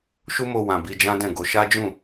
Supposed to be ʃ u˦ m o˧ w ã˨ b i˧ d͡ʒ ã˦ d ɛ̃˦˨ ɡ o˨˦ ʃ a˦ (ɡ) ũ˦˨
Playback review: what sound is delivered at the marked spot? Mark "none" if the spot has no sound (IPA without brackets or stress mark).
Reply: d͡ʒ